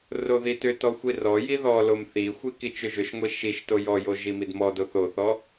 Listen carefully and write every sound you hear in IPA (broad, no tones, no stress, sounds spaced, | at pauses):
r o ð i t ʏ t ɔ xʷ i r ɔ j i ð ɔ l o m θ i xʷ i k i t͡ʃ ʏ ʒ ʏ ʃ ŋʷ i ʃ i ʃ t o j ɔ j o ʒ i m i d m ɔ d o θ o θ ɔ